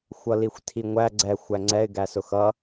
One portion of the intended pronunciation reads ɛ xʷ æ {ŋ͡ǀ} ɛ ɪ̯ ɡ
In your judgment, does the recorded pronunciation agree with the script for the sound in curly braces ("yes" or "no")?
yes